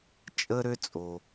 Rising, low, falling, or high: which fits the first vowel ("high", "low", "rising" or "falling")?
high